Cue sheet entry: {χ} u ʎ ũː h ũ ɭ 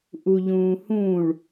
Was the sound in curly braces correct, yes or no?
no